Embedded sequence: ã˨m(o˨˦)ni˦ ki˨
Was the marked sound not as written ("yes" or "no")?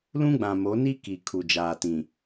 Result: no